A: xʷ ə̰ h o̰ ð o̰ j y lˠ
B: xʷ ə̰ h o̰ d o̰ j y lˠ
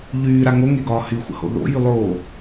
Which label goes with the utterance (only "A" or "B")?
A